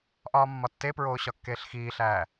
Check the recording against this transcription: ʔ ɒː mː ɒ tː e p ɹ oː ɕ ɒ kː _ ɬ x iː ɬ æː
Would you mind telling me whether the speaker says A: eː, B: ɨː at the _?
A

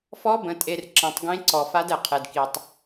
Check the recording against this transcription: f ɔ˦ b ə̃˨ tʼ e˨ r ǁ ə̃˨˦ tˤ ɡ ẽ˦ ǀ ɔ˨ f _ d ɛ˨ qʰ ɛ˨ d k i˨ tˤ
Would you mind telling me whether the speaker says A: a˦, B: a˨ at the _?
A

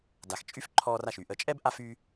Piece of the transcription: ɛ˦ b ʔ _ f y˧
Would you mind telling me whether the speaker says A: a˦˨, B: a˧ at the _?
B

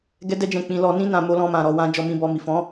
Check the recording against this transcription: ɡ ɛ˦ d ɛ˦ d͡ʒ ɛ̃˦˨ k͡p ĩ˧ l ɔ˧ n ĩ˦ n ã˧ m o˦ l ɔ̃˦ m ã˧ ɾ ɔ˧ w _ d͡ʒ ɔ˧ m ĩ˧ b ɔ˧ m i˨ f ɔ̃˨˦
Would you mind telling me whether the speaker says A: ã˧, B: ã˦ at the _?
B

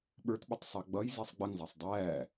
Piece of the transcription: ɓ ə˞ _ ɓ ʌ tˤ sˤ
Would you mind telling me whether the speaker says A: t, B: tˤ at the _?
A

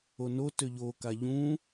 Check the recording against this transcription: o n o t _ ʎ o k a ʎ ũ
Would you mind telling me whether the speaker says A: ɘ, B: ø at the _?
B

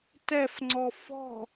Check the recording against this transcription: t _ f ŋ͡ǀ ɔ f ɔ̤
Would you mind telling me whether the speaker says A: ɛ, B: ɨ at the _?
A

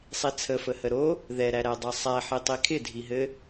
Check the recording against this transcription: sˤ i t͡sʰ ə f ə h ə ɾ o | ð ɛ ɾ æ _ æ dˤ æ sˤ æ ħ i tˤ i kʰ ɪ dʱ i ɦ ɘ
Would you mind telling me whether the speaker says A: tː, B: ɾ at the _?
B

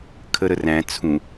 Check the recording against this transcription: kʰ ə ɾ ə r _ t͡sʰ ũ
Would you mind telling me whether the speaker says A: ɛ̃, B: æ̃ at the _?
B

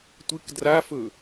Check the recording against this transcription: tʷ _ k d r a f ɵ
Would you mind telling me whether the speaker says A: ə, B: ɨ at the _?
B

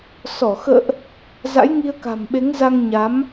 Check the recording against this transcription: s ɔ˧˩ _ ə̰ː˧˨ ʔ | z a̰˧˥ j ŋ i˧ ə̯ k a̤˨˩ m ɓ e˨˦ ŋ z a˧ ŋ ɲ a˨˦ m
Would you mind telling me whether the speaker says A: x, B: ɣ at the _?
A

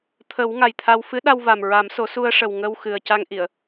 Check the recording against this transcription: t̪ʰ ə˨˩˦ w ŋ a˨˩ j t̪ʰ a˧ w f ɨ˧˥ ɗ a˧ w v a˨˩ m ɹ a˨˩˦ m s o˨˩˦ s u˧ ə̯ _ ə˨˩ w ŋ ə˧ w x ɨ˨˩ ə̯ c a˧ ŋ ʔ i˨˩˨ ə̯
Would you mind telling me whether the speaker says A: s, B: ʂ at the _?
B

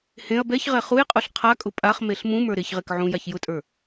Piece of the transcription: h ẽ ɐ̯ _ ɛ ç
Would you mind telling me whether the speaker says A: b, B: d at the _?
A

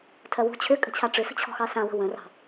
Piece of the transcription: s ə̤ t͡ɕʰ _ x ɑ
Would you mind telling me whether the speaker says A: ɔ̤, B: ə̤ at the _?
A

